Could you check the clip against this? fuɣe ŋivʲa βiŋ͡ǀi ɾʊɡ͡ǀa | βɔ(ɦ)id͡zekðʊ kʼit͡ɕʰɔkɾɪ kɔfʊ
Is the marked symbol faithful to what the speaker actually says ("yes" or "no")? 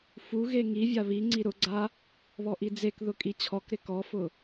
no